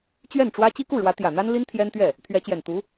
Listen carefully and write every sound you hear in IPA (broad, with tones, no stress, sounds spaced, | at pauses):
t͡ɕ ɥ ɛ˥˩ n ʈ͡ʂ w ä˥ t͡ɕ i˥ k u˥˩ ɻ w ä˧˥ t̪ j ä˨˩ n̪ a˥ n l i˥ n t̪ʰ j ɛ˥ n t̪ ɥ ɛ˥˩ | t̪ʰ ɥ ɛ˧˥ t͡ɕ j ɛ˨˩ n t̪ u˧˥